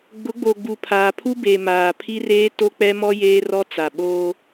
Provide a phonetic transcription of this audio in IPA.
ɡ͡b ʊ˨˦ ɡ͡b o˨ ɡ͡b u˨ pʰ aː˨ pʰ u˦ b e˨ m aː˨ pʰ i˦ r eː˦ t o˦ k͡p ɛ˦ m ɔ˦ j eː˦ r ɔ˦ t͡s a˨ ɓ oː˦

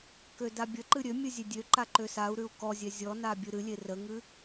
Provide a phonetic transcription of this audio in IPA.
k ø d a bʲ ə ǃ ɨ ɾʲ ø mʲ ɨ zʲ e dʲ ø ǃ a ǃ ø s a u̯ ɾ ʉ u̯ k ɔ zʲ ɛ zʲ ɔ n a bʲ ɨ ɾ ɨ lʲ e r ə ŋ ɨ

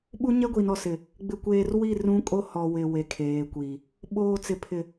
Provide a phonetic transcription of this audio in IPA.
ɓ u˦ ɲ ɛ˦ ɡʷ i˨ n ɔ˨ s ɪ˨ | ɡ͡b ɪ˨ kʷ eː˨ r w i˦˨ r ũ˦ kʼ o˦ h ɔ˨ w ɪ˨ w e˨ kʰ eː˨ kʷ i˨ | ɓ oː˨ t͡s ɪ˨ pʰ ɪ˨

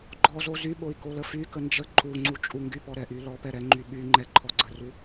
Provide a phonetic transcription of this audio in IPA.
ɡ͡ǃ ɔ z o z y ɓ o i̯ k o l ə f y k ə n d͡ʒ ə ǃ u ŋ͡ǀ u t͡ʃʼ u ŋ ɡ y p ɔ ɾ ɛ ʔ y l ɔ p ɛ ɾ ɛ ŋ͡ǃ y ɓ y ŋ͡ǃ ɛ ǃʰ ɔ ɡ͡ǀ ə r u

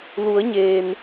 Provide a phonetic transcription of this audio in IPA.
l u˩˧ ə̯ ɲ eː˩ n

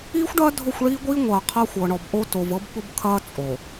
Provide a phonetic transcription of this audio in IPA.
iː˦ xʷ ɖ ɐː˦ dʱ ʊ˦˨ xʷ ɭ iː˦ ɡʷ iː˦ ŋʷ ɐː˨ qʰ ɐ˦ xʷ ɤ˨ ɳ ɔ˨ b ʔ o˦ t o˨ v ɤ˦ b ɓ ʊ˦ b kʰ ɐː˦ t͡sʼ o˨

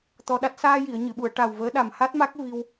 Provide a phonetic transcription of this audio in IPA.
t̪ ɔ˧ ɗ a˦˥ t̚ s aː˧ j i˨˩˨ ə̯ ɲ ɨ˨˩˨ ɓ u˨˩˨ ə̯ ʈ a˨˩ w v əː˧˥ ɗ a˨˩ m h a˦˥ t̚ m a˦˥ k̚ v i˧ w

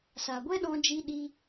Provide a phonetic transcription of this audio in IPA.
s a˨ ɡʷ ɛ˦ ɗ ɔ̃˧ d͡ʒ i˧ ɗ i˧

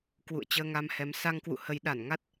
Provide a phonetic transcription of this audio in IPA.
k w ṵ˧˨ ə̯ t͡ɕ əː˧ ŋ a˧ m h ɛ˨˦ m s a˧ ŋ k w ṵ˧˨ h ə˨˦ j ɗ a˧˩ n ŋ a˦˥ t̚

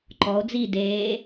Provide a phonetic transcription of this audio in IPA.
ǃ ɔ o̯ d͡z i d eː

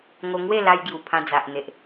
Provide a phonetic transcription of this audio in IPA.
ŋ o˧ ŋ w e˥˧ l a˧ j ɡ j u˨˩ pʰ ã˧ d͡z a˨ ʔ n̪ e˨ ʔ

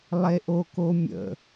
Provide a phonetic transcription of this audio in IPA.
lˠ e ʔ o k o mʲ ə̰

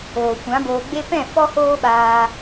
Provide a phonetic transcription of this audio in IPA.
oː˨ kʷ ã˨˦ b oː˧ ɡ͡b e˦ p ɛ̃˦˨ f ɔ˦ h oː˦ ɓ aː˧

